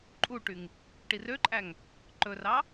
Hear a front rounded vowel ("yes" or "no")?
yes